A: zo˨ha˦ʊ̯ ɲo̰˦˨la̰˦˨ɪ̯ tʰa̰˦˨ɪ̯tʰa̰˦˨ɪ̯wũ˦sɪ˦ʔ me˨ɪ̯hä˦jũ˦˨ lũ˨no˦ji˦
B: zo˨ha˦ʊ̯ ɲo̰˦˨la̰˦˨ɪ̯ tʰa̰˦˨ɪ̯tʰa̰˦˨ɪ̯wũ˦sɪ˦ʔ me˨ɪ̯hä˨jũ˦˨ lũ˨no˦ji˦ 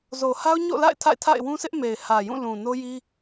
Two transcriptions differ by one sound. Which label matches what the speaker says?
B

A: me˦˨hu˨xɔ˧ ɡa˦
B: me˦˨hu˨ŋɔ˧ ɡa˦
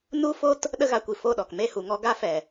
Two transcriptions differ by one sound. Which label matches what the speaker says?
B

